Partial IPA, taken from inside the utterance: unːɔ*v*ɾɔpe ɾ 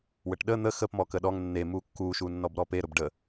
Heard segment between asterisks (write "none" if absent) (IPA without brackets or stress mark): b